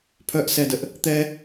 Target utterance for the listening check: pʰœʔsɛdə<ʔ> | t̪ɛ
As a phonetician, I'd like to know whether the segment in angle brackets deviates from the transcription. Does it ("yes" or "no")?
no